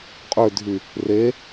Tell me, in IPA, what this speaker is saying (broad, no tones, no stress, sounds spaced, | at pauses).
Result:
qʼ ø dʱ y | r e